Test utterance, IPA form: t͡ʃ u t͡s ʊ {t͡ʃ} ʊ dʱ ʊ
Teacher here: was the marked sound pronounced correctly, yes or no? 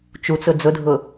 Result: no